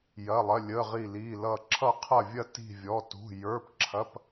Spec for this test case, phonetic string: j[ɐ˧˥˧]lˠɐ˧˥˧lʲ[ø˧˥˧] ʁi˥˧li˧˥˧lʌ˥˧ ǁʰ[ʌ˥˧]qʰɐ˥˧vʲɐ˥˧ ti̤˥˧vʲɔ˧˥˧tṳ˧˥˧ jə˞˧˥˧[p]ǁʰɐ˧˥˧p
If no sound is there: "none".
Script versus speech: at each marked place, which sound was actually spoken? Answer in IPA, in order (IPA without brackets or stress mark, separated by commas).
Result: ɐ˧˥˧, ə˧˥˧, ʌ˥˧, p